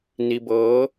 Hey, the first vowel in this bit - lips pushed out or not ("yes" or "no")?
no